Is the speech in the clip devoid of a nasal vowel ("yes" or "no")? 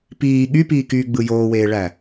yes